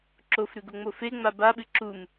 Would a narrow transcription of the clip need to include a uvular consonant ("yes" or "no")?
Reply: no